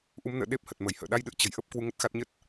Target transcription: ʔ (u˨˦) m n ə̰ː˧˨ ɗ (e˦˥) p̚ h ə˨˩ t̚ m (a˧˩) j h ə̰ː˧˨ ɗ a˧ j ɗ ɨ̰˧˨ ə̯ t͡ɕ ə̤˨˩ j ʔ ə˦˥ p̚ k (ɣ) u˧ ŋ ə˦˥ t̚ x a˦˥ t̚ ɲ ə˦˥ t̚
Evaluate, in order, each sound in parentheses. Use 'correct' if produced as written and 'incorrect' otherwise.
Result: correct, correct, incorrect: ə˧˩, incorrect: w

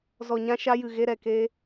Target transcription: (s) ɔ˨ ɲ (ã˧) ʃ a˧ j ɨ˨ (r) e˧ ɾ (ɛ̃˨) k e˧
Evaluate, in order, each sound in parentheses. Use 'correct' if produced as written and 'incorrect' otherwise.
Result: incorrect: z, correct, incorrect: ɣ, incorrect: ɛ˨

